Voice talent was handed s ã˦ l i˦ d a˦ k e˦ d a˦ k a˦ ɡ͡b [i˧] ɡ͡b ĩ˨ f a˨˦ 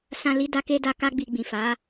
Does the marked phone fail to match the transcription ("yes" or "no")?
no